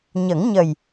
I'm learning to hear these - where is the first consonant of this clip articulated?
palate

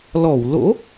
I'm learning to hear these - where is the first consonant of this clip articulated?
tongue tip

